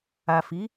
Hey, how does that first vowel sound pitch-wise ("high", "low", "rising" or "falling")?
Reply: low